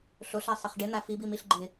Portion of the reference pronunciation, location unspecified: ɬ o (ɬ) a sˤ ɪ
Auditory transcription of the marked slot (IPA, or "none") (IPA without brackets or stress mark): ɬ